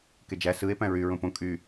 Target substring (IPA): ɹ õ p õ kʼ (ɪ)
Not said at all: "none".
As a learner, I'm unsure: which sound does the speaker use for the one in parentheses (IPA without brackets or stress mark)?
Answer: y